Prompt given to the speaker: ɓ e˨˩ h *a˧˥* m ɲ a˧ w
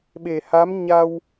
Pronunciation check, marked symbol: correct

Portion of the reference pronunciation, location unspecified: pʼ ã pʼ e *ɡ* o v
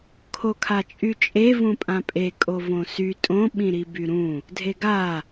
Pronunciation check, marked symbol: incorrect: kʼ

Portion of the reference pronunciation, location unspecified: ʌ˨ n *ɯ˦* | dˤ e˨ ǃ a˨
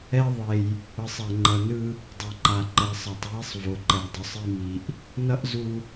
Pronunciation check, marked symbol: correct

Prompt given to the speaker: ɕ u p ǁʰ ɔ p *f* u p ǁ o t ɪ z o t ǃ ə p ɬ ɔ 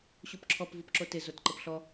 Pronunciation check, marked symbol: incorrect: v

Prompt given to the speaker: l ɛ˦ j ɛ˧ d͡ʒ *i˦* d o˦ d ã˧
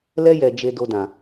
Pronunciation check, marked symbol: incorrect: e˦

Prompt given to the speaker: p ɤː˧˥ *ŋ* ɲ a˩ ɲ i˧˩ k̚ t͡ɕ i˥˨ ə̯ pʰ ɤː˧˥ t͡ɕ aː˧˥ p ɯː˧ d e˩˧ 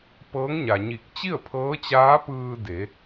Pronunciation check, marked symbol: correct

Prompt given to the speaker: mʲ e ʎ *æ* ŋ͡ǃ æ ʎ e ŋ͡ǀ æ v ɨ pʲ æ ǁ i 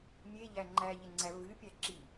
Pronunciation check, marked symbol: correct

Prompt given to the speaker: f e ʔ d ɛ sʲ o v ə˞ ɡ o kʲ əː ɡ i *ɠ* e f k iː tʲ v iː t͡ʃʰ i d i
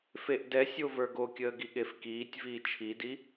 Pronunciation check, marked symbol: correct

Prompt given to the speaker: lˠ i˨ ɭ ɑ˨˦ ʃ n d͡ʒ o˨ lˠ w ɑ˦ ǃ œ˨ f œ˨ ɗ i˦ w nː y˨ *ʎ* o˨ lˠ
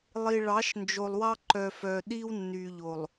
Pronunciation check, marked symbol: correct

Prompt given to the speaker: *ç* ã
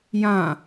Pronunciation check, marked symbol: incorrect: j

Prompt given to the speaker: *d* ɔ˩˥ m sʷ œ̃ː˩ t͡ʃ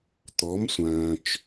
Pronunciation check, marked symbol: incorrect: t̪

